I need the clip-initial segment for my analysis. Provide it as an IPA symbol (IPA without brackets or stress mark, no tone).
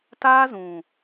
t